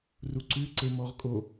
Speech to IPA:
r u ǀ ʉ ǀ e m ɔ ʁ kʼ o

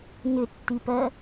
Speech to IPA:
n ʏ tː i p ɜ

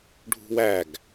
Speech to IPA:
ɖʱ ṳ w æ ɡ

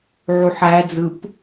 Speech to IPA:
ʕ u ħ æ d͡z ɯ p

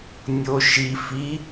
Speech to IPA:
nʲ o ʃ i f i

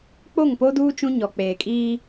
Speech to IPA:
k͡p o˦˨ ŋ p o˦ d uː˦ t͡ʃ ũ˦ ɲ ɔ˨ k͡p eː˨ kʼ iː˦

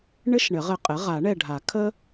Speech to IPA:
ɳ ɘ˥ ʃ ɳ ɘ˨˩˦ ʁ ɘ˩˥ qʼ ɘ˩˥ ʁ a˨˩˦ ɳ ɛ˦˨ ɖʱ a˨˩˦ kʰ ə˥

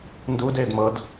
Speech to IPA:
n d u d eː d m ɤ d

